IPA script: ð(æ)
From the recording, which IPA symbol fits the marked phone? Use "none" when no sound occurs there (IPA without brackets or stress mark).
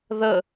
ə